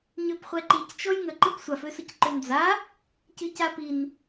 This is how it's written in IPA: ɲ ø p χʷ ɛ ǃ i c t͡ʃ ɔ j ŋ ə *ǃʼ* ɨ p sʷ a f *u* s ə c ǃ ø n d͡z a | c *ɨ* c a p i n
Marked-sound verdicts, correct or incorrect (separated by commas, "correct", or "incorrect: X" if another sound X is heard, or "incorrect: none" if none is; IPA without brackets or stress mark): incorrect: ǃ, incorrect: ø, correct